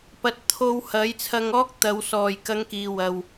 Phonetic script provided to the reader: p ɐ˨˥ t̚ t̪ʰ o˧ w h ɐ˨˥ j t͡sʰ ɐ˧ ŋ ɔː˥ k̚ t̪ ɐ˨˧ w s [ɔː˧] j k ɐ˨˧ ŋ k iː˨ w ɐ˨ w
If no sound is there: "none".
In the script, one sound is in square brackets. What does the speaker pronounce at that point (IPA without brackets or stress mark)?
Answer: ɔː˨˩